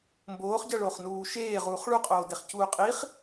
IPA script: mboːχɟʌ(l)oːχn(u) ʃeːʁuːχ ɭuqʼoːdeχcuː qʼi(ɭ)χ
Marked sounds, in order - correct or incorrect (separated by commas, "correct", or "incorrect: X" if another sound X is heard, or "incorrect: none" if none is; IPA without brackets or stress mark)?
incorrect: ɭ, incorrect: uː, incorrect: none